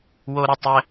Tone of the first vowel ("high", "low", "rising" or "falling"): high